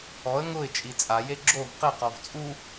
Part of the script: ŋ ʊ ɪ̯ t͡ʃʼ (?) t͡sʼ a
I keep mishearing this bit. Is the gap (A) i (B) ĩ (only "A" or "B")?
A